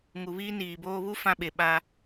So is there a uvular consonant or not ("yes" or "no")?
no